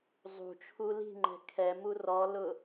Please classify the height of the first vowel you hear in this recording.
high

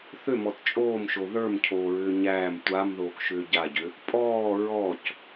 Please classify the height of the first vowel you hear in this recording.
high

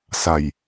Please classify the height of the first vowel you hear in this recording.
low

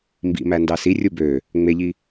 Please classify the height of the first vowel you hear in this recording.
high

